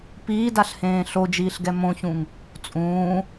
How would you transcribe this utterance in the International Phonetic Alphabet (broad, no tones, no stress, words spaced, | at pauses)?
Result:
piːdaɬhẽː ɬod͡ʒiːɬɡɛ mõçũŋ | t͡sʼũː